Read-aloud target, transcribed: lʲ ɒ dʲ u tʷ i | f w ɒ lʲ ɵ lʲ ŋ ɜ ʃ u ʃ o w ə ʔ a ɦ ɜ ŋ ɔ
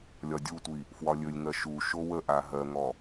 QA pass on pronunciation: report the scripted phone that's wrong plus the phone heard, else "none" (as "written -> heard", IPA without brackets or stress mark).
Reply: none